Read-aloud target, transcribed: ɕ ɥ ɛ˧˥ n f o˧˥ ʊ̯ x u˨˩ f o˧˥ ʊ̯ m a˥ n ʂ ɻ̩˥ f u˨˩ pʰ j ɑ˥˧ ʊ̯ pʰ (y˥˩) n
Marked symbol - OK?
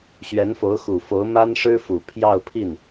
no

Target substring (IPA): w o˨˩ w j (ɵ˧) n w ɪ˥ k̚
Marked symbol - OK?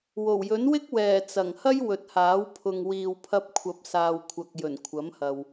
no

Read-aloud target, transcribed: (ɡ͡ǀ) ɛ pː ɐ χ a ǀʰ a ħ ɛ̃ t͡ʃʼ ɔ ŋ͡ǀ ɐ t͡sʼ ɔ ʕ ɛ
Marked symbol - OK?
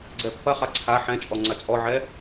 yes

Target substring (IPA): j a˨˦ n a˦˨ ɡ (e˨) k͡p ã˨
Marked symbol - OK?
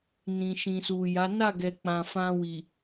no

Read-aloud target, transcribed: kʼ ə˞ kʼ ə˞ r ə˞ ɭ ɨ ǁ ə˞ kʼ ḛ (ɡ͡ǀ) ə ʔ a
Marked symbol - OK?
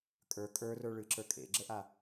no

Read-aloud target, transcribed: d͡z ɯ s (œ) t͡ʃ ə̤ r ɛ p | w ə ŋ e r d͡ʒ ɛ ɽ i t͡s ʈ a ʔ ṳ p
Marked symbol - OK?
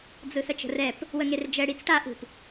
no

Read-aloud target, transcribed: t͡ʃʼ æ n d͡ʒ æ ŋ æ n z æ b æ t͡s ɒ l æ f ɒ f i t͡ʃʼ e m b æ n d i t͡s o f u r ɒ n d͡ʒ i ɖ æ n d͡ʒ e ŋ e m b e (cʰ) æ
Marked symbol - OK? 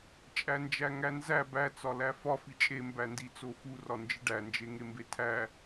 no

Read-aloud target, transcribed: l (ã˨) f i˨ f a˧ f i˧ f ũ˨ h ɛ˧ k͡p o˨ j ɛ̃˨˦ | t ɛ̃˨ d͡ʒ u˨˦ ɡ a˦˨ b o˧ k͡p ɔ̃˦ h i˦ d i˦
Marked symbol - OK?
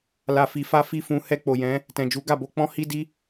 no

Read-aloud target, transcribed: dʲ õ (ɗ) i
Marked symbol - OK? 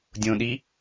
yes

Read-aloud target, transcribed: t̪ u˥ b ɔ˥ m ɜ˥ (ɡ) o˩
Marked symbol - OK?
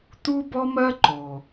no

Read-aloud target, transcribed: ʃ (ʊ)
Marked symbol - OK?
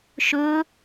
no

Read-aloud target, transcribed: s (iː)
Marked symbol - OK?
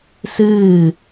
no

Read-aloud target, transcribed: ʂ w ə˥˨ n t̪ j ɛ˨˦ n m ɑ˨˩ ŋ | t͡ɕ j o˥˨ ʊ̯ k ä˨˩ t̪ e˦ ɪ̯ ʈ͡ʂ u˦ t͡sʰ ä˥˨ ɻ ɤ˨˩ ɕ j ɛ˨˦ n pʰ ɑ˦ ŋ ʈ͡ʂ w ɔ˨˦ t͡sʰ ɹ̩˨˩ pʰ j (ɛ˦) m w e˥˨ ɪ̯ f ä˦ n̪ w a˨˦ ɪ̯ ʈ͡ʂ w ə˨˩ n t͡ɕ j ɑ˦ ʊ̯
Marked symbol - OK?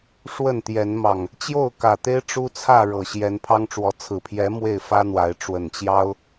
no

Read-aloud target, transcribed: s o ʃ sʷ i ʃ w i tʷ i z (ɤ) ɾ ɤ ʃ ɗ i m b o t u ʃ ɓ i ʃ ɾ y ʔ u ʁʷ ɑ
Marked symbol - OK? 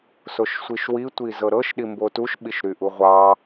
yes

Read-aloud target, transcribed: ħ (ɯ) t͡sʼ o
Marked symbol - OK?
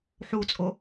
no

